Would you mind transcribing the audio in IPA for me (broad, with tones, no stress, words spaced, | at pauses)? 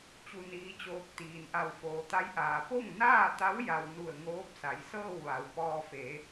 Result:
t͡ɕu˧niː˧˥t͡ɕoː˧k̚ t̪iː˩nʔa˧˩w foː˩t̪a˧˥jʔaː˩ po˥˨ŋnaː˥˨t̪a˧˥w ja˧w nu˧˩ə̯ŋoː˧˥p̚ sa˩˧jsɤː˥˨wʋa˩˧w pɔː˧fe˩˧